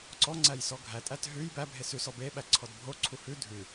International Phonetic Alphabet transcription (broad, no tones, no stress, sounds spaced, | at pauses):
ǀ ɔ ŋ͡ǀ æ j s ɔ ɡʱ æ tʼ æ t ɦ ʉ j b æ bʱ e s ʉ s ɔ b e ɓ æ ǀʰ ɔ d bʱ o ǀʰ u h ʉ dʱ ʉ